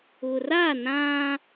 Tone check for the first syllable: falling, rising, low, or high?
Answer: low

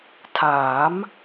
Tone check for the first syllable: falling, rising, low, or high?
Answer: rising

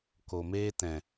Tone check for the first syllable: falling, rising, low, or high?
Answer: low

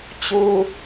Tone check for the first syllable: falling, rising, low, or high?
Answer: low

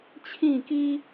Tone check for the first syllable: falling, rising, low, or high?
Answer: falling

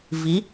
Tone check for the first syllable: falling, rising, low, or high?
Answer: rising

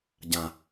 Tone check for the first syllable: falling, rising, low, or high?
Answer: low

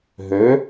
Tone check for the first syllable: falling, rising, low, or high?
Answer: rising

